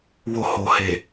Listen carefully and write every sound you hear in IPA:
w o˨ h o˨ h e˨

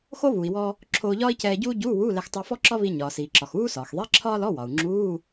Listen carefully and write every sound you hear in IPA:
x o˥ β u˩ i̯ w ɔ˧ | ǁʰ oː˧ ʎ ɒː˥ i̯ c ɛː˧ ɟ uː˥ ɟ uː˧˥˧ w uː˧˥˧ l ɛ˧ x tˤ u˧ f ɔ˥ ǁ ɒ˥ β i˧ ɲ ɒː˩ s iː˩ ǁ ɒ˩ x uː˥ s ɒː˩ x ðˤ i˧˥˧ ǁʰ ɒː˥ l ɔ˧˥˧ w ɒ˩ u̯ ŋ͡ǁ uː˧˥˧

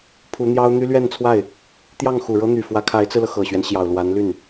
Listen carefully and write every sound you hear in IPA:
pʰ u˧˥ n̪ j ɑ˥ ʊ̯ n̪ y˥ l ɥ ɛ˥˧ n t͡sʰ w a˥˩ ɪ̯ | t̪ j ɑ˥˩ ŋ x u˨˩ ɻ ɤ˥ n̪ y˨˩ f w ä˧˥ kʰ a˧˥ ɪ̯ t͡s ɹ̩˧ l ɤ˩ x ɤ˨˩ ɕ ɥ ɛ˦ n ɕ j ɑ˨˩ ʊ̯ l w a˧˥ n l y˥˩ n

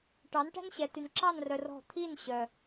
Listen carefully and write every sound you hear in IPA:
ʈ ɑ˨˦ n ʈ æ̤˦ n ɕ ɛ˨ t y˨ n ǁ ɑ˦˨ n r œ˨ r ɔ̤˦˨ t̪ʰ i˦˨ n ɕ œ˨

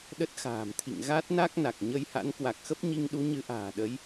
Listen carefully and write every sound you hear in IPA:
ɗ ə˦˥ t̚ x a̤ː˨˩ m t̪ʰ ḭ˧˨ ŋ ɣ a˦˥ t̚ n a˦˥ k̚ n a˨˩ k̚ ɲ ə˧ j h a̰˧˥ n k w a˨˩ k̚ x ə˦˥ p̚ ɲ i˧ ŋ ɗ u˨˦ ɲ ɨ˨˦ ʔ a̤ː˨˩ ɗ ə˨˦ j

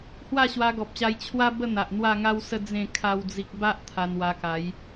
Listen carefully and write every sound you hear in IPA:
h w a˥˧ ɕ w a˧ ɡ ɔ˨ p̚ ɕ a˧ j t͡ɕʰ w a˦ b ə˥˧ n̪ a˨ ʔ n̪ w a˥˧ ŋ a˦ w s ə˥˧ d͡z ẽ˥˧ kʰ a˦ w d͡z i˦ k̚ b a˦ ʔ t̪ʰ a˧ n w a˧ k a˨˦ j

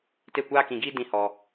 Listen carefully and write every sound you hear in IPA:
t e˦˨ kʷ aː˦ k ĩ˧ ɡ iː˦ d ĩ˧ h ɔ˧

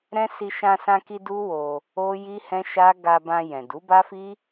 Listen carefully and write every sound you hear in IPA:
ɾ ɛ̃˦ s i˧ ʃ ã˧ s ã˧ k i˧ d u˦ w o˧ | o˦ j i˦ h ɛ̃˦ ʃ a˦ ɡ a˧ b ã˧ j ɛ̃˨ d u˨˦ b a˦ f i˦

